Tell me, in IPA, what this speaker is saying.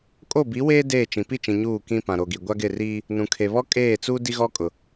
kʼo˦˨bi˨˦weː˦ deː˦˨t͡ʃĩ˨ pi˦˨t͡ʃĩ˨ ɲuː˦˨kĩ˦ pã˨ɾo˨ɡi˨ ɡʷa˦ɡɪ˦˨riː˦ | nũ˨kʰe˨ βɔ˦kʼeː˦˨t͡suː˦ di˦ɣɔ˦kʼʊ˨

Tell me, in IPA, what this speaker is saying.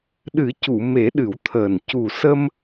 ɗɨ˨˩˦cu˨˩˨me˨˩˦ ɗɨ˨˩˦wt̪ʰəː˨˩n cu˨˩sə˧m

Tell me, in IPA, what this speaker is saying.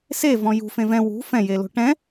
sevɔ̃ jṳfẽ vɛ̃ wṳ fɛ̃jelo̤ ʈɛ̃

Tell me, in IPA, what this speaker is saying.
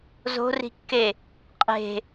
zo̤ri̤kːe | qʼe̤

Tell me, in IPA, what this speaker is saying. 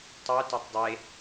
tˤœtatˤ dˤe

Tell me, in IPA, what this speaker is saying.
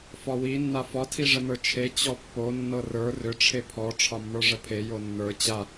fɒwi nːafɒ tʰiʐənə˞t͡ʃʰe t͡ɕɔpːo nːɤrə˞ rʏ ʈ͡ʂʰepʰɔ ʈ͡ʂʰɒmːə˞ʐəpʰe jonːə˞ t͡ɕa

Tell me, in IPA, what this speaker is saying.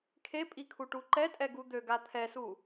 kʰepʼi kʰuʈuǃɛtʼɛ ɡud̪øɡa t̪ʰɛsu

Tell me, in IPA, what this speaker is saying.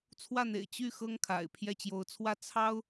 t͡sʰwä˥˩n̪ḛ˨˩ɪ̯ t͡ɕy˥˩ xɤ˥ŋkʰa̰˨˩ɪ̯ pʰjɛ˥˩t͡ɕjo˧˥ʊ̯t͡sʰwä˥ t͡sʰɑ˥ʊ̯

